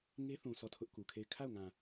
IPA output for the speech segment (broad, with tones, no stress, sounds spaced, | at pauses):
ŋ e˦ θ ũ˨ s ɔ˦˨ tʰ ʊ˦ ʔ k u˨ kʰ e˦˨ ɪ̯ kʰ a˦˨ ʊ̯ ŋ ã˨